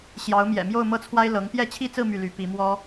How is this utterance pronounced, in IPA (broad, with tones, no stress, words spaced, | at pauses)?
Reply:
ɕjɑ˧˥ʊ̯mjɛ̰˨˩mjo˥˧ʊ̯ mɤ˥˩t͡sʰwa˥ɪ̯ lɤ˧˥ŋ pjɛ˥˩t͡ɕʰi˥t͡sɹ̩˥˧ my˥˩ly˧˥pi˧˥ mwɔ˥